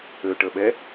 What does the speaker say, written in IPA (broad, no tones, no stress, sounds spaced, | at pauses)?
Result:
ø ʈ ə ɓ ɛ